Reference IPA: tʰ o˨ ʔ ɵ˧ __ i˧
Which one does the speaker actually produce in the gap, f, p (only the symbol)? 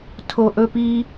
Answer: p